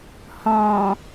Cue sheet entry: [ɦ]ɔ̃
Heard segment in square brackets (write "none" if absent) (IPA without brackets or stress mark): h